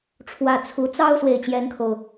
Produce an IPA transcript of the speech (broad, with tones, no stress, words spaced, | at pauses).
ʈ͡ʂʰwä˥˩ t͡sʰu˧˥ t͡sɑ˥ʊ̯ swe˥˩ɪ̯t͡ɕjɛ˥nkʰo˨ʊ̯